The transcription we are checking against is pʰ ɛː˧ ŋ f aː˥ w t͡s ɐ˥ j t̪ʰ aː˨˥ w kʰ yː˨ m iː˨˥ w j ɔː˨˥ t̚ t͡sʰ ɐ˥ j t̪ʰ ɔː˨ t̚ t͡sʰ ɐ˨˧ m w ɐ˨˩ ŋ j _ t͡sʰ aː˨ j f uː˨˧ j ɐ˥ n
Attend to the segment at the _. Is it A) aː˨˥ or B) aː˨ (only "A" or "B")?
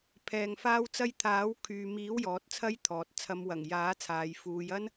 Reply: A